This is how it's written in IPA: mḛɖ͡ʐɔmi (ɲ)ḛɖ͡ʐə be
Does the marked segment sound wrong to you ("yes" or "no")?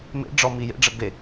yes